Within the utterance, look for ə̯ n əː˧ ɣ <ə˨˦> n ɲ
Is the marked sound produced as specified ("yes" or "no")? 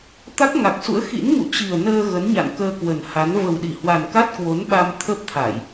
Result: yes